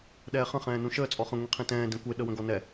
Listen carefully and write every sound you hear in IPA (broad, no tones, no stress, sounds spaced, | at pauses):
ɗ ɛː χ ə̃ χ ɛ̃ː n ũ ʃ əː t͡sʼ ɔ χ ə̃ ŋʷ ĩ qʰ ĩ t ɛ̃ː d ẽ kʷ e ɗ ə w ə̃ ɡ ɔ n ɛ